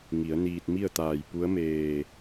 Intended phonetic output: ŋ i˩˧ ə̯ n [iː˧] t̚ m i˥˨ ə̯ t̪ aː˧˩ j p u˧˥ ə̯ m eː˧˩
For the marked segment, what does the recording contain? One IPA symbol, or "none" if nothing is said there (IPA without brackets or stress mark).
iː˧